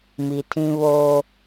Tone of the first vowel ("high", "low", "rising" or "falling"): low